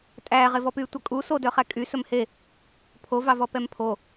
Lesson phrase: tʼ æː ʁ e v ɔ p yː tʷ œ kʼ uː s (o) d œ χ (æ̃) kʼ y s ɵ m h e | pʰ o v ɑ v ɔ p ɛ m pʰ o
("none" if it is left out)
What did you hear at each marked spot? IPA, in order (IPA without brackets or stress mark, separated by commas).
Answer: o, æ